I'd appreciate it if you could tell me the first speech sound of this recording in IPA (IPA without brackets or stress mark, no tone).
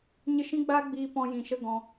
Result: ɲ